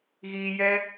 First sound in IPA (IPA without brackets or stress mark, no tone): ɣ